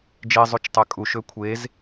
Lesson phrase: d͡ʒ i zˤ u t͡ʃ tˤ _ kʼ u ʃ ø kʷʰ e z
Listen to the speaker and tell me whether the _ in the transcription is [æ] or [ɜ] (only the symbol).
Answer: æ